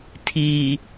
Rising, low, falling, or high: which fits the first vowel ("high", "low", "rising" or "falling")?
low